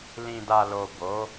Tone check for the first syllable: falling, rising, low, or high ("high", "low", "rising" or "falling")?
low